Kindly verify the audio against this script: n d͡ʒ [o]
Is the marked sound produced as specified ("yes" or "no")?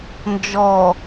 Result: no